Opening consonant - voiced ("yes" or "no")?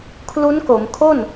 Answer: no